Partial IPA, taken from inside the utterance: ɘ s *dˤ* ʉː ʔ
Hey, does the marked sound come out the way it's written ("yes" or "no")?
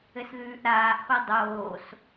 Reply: no